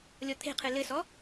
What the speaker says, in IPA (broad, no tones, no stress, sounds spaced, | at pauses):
lʲ ɔ t̪ʰ e̤ qʰ ɨ l ɘ s ɔ